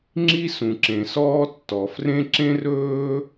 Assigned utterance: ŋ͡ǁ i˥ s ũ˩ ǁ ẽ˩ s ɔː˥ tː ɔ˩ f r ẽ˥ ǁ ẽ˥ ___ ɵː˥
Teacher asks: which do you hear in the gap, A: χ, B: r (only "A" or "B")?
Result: B